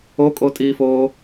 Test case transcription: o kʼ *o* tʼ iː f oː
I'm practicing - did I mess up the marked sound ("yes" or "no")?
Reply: no